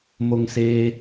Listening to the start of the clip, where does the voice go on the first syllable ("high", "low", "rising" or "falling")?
low